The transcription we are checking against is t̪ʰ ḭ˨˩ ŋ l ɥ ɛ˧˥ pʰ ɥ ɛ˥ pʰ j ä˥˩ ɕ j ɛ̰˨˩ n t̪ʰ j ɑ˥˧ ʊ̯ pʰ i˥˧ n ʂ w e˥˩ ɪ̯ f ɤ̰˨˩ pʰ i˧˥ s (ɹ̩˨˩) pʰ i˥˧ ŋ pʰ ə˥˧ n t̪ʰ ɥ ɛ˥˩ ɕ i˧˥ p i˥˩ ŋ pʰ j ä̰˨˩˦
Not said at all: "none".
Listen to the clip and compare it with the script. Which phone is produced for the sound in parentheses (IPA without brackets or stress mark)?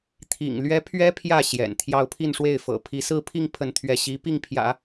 ɹ̩˥˧